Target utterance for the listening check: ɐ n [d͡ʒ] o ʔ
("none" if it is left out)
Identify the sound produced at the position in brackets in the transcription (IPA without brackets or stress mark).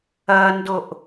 d